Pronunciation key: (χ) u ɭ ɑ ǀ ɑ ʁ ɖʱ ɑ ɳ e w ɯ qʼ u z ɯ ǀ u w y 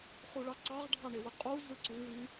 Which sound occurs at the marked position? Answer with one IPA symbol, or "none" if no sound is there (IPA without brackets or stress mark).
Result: χ